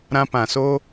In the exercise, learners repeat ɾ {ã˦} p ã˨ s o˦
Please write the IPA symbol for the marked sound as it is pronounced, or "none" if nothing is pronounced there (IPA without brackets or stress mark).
ã˦